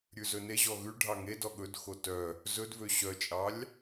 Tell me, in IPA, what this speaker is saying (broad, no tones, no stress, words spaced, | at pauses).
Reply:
ɾʲʉzɵneʑɔ ɣʉ ɖʱɑŋedɔ ɠɵdxo tœ | zɵdvø ɕœt͡ʃʼɑlʲ